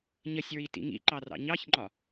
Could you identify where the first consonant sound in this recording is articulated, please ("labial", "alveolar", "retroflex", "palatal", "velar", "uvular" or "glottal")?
palatal